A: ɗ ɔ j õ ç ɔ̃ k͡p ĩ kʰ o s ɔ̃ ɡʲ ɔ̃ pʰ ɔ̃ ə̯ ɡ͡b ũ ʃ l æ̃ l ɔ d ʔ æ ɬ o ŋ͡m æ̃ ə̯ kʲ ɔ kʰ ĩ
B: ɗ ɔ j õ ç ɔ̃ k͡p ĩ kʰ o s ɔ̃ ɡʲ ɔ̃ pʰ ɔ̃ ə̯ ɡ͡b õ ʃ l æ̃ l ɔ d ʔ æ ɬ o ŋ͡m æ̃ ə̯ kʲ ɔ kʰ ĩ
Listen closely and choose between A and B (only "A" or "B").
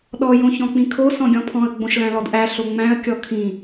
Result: B